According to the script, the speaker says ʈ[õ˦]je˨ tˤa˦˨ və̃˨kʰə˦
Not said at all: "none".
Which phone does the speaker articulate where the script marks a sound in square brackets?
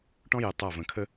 ɔ̃˦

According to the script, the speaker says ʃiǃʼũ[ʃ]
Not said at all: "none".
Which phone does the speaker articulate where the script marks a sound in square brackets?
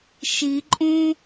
none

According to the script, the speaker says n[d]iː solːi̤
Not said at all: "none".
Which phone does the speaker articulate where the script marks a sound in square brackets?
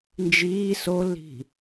d͡ʒ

